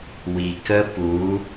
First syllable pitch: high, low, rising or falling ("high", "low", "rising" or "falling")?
low